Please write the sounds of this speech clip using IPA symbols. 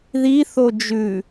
ð i θ o d͡ʒ ʉ

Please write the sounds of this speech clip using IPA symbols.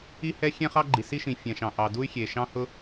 i˥ h ɛ˥ xʲ ɛ̃˥ χ ɑ˥ ɡ͡ǃ i˩ s i˥ ʃ ĩ˩ fʲ ɛ̃˩ ʃ ɑ̃˩ ʔ ɑ˩ d u˥ y̯ xʲ e˩ ʃ ɑ̃˥ h ʊ˥

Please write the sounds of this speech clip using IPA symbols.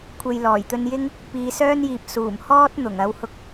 kʷʰ e˨ j l ɔː˨˩ j t̪ ɵ˧ n j ɪ˥ ŋ | p iː˨˧ s œː˥ n j iː˨ p̚ s uː˨˩ m h ɔː˥ t̚ n̪ ʊ˨˩ ŋ ɐ˨˧ w h ʊ˧ k̚

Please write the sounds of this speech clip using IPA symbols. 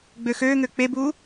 ɡ͡b ø x øː ŋ ø k͡p e b uː

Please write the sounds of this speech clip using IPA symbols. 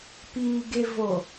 p iː ɡ e v o

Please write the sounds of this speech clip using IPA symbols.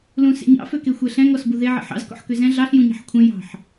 l ũ s ḛ ɲ ɑ̰ f ø k e xʷ ɛ ɬ ɛ̃ ŋ ɔ s b u ð e ʕ ḛ ħ ɑ̰ z k ɔ̰ ħ k ø z ɛ̃ ɮ ɑ ɬ j ũ ɲ ɑ̤ ħ kʷʰ ɛ̃ j ɑ̤ ħ

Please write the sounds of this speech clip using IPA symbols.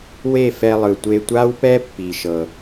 w e˦˨ f ɛ˧ lˠ ɯ˨ tʷ e˧ tʷ a˦ w p ɛ˦ pː i˧ ʃ ɤ˧

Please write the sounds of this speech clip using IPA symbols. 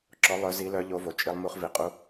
ǁ ɔ˨˦ lˠ œ˨˦ z i˨˦ l œ˨˦ ʎ o˨˦ v o˩ t͡ʃʼ i˨˦ lˠ m u˨˦ χ v i˩ qʼ u˨˦

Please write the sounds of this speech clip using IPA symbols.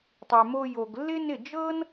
tˤ y˨ m o˧ j o˨ ɡ lː ɪ˦ n ɪ˦˨ d͡ʒ ɤ˦ n

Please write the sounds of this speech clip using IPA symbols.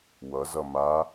w ʌ z ʌ m a

